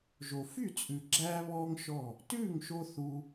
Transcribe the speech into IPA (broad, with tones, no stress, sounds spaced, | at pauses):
ʒ o˨ f y˦˨ t͡sʼ ʉ˨ ɡ͡ǁ æː˦ β ɔː˦ ŋ ʃ ɔ˦˨ | t ʉː˦˨ ŋ ʃ o˧ θ u˧